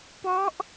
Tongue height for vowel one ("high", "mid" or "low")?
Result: mid